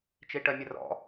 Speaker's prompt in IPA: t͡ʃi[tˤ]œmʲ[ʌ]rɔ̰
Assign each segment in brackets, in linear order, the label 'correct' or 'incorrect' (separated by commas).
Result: incorrect, incorrect